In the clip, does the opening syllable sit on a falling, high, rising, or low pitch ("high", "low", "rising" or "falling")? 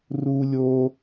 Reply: high